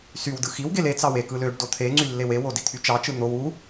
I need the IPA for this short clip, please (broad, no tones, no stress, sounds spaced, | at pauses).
s y w d ɯ x i w ɡ e l e t͡s ɑ w e k ɯ l ø ɖ d o t̪ʰ e ŋ͡ǀ y lː e w e w o d i t̪ʰ y t͡ʃ ɑ t͡ʃ ɯ n̪ o w u